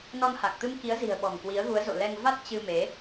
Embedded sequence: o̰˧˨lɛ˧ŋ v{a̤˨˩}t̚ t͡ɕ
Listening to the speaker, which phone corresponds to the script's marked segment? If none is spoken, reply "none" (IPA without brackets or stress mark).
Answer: a˦˥